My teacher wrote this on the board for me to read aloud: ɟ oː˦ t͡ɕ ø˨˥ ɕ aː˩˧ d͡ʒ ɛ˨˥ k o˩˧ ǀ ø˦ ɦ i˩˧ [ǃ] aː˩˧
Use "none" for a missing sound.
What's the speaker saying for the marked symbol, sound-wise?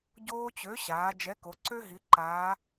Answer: ǃ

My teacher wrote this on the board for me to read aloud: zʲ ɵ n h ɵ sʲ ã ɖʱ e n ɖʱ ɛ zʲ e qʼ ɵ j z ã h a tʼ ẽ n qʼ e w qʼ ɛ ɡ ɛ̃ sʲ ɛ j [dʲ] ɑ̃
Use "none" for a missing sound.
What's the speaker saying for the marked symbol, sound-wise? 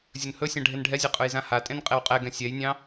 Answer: nʲ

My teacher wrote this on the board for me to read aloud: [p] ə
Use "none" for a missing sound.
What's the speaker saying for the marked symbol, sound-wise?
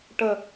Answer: ʈ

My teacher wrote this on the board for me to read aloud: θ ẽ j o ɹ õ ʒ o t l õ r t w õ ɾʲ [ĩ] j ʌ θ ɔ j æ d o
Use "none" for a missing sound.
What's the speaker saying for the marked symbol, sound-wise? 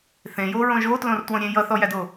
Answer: ẽ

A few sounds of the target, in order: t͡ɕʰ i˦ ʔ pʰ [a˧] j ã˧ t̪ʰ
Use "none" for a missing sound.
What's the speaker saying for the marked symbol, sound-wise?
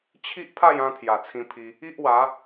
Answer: a˥˧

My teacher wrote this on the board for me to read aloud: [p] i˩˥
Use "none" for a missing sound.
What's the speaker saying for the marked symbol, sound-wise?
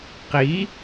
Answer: q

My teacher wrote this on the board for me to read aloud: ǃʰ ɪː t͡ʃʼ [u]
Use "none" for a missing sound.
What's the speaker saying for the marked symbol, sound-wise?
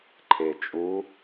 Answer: u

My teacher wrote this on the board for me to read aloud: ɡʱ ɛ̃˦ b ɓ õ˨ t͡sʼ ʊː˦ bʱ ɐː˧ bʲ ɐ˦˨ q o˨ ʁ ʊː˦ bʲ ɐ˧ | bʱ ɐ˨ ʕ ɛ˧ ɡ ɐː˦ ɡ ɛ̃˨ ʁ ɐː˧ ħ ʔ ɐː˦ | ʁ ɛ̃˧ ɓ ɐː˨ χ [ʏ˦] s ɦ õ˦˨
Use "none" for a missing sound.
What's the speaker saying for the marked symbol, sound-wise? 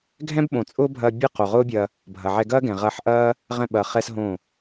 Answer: ɛ˦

